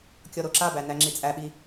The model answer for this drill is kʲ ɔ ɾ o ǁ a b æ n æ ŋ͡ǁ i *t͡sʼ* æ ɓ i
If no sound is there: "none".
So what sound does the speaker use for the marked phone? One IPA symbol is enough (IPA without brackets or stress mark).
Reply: t͡sʼ